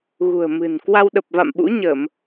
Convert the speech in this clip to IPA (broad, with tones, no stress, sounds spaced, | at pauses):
ɣ ṳ˨˩ ə̯ m ɨ̤˨˩ n k w a˧ w ɗ ə˨˩ p̚ v a̰˧˨ m ɓ ṵ˧˥ ɲ ə˧˩˨ m